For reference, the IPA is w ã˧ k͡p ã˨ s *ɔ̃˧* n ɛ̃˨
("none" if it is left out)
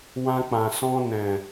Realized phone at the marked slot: ɔ̃˧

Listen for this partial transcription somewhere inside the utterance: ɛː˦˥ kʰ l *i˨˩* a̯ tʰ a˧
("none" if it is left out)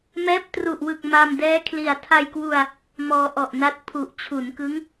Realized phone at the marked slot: i˨˩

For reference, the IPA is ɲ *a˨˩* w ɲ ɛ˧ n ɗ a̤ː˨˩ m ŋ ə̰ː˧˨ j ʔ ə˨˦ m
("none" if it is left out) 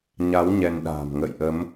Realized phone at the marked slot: a˨˦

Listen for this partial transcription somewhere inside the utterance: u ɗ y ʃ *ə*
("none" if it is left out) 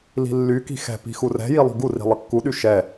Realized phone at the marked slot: ɛ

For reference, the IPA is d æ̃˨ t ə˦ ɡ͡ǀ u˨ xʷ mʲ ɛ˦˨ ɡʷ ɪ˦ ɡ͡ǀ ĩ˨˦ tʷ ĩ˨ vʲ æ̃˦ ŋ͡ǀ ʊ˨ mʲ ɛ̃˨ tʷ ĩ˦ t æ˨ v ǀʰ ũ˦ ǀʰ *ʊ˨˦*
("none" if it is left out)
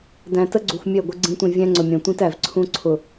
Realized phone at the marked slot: ʊ˨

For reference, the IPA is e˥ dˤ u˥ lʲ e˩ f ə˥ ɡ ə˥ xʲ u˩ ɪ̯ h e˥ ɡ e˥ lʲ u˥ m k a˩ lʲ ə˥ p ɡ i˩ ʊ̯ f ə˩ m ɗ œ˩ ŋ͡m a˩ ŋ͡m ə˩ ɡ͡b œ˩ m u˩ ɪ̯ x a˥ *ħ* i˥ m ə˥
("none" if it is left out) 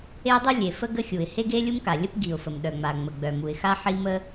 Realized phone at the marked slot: ħ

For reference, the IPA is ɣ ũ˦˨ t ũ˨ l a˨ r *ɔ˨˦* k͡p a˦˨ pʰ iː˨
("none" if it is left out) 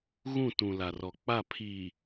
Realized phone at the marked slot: ɔ˨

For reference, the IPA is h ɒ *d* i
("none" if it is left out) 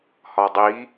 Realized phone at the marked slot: dˤ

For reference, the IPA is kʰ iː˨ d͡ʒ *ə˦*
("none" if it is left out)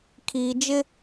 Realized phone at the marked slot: ɪ˦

